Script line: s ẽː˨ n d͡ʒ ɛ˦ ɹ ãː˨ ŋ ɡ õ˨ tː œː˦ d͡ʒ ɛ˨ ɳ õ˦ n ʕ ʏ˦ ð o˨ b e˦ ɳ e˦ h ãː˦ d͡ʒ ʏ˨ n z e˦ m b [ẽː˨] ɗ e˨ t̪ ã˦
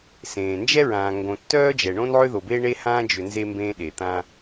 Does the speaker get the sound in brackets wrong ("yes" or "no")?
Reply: yes